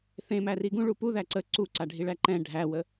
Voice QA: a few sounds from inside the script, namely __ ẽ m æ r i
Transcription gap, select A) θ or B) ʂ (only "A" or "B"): A